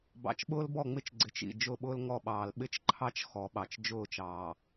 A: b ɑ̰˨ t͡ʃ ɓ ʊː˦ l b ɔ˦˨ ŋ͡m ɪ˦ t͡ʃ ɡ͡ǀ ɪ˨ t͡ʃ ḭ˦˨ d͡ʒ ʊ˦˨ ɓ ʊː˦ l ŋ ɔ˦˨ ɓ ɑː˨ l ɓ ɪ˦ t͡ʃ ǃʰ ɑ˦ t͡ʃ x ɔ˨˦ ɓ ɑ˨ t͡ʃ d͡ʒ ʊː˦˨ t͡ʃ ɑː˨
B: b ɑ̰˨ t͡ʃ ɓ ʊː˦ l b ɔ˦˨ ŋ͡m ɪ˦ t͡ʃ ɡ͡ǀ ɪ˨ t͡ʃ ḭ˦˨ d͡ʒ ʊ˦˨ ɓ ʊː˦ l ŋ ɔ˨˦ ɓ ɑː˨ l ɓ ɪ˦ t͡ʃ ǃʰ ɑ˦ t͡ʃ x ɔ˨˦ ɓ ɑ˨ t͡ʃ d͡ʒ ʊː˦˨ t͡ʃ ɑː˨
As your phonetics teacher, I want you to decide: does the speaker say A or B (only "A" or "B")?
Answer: A